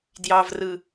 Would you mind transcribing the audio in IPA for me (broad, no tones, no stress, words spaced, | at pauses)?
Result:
djɑvrɯ